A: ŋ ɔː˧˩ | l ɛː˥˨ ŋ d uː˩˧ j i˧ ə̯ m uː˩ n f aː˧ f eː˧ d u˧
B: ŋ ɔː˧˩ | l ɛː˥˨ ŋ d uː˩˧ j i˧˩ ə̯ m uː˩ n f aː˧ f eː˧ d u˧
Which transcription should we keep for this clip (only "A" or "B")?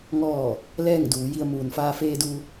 A